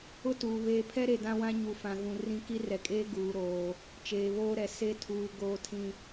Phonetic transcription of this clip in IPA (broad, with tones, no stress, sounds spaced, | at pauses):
ʊ˦ t uː˨ β eː˨ pʰ ɛ˦ ɾ e˨ d ã˦ w ã˦ ɲ u˨ f ã˨ ɣ ũ˨ r ĩ˦ k i˦ r ɛ˨ kʼ eː˦ ɡ uː˨ ɾ oː˨ | t͡ʃ eː˨ β oː˦ ɾ ɛ˨ s e˦˨ tʰ uː˨ ɡ oː˨ tʰ ĩ˨